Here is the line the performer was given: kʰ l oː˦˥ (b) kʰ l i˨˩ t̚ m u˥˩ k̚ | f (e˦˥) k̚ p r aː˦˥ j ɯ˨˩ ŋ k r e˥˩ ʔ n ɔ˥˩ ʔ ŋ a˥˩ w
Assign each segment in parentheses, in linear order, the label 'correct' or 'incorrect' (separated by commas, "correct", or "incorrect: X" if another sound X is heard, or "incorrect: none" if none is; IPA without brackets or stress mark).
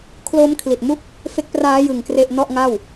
incorrect: m, correct